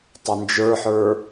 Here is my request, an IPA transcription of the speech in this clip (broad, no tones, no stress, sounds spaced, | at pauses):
tˤ ɵ n d͡ʒ ə˞ ħ ə˞